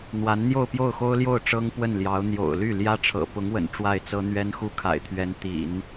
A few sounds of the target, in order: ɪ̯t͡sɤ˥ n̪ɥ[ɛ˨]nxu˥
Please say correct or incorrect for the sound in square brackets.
incorrect